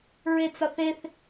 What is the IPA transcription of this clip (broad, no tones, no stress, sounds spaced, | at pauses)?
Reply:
ɹ e t͡s ɒ θ e θ